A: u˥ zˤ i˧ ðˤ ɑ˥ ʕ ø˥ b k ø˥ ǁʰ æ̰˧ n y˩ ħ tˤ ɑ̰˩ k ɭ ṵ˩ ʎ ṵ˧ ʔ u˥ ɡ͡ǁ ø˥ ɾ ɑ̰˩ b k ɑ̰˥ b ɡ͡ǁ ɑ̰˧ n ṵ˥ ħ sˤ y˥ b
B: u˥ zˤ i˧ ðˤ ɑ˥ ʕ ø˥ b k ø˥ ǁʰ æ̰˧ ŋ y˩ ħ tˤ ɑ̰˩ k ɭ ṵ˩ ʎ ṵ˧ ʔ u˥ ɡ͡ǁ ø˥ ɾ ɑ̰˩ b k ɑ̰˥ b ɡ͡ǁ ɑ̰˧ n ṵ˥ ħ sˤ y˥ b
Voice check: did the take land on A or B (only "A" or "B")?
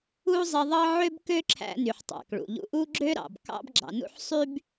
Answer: A